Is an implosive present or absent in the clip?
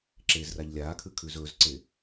absent